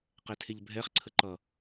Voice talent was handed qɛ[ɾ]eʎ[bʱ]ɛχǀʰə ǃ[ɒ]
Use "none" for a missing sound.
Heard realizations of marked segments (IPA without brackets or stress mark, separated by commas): tʰ, bʱ, ʌ